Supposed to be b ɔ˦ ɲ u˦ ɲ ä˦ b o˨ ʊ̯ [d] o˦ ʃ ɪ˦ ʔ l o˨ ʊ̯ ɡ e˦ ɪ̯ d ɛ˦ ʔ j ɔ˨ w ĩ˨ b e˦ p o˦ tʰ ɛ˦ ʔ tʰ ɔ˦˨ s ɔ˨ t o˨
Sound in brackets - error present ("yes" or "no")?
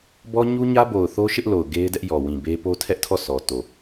yes